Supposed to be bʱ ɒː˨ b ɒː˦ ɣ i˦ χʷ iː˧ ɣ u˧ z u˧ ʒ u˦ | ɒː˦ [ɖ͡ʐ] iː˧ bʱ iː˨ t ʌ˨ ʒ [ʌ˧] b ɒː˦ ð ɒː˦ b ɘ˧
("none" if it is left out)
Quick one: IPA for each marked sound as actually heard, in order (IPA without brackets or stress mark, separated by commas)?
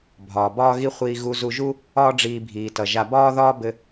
ɖ͡ʐ, a˧